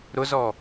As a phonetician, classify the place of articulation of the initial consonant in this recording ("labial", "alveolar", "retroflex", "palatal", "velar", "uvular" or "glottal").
alveolar